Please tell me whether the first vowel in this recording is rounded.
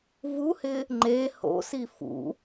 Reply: yes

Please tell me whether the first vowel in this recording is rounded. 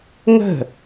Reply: no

